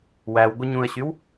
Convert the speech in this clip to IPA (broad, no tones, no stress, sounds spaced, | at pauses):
w æ w ɡʷ ɯ ɲ ũ ə̯ ɕ y w